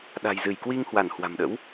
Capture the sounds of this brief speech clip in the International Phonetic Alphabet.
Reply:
ɗ a̤˨˩ j z ɨ˧˩ j k w i˧ ŋ h w a˧˩ n h w a̤˨˩ m ɗ ə̰˧˥ w

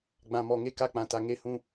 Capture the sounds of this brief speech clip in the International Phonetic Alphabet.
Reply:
ɡ͡b ã˨ m ɔ˨ ŋ e˦ k a˦ k͡p ã˨ t a˨ ŋ e˦ h ũ˦

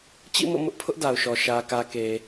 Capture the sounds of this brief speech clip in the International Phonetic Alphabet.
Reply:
t͡ɕ ḭ˦˨ m o̰˦˨ m ʊ˦ ʔ pʰ ʊ˦ ʔ d a˨ ʊ̯ ʃ ɔ˨ ʃ ä˨ k ä˨ k e˨

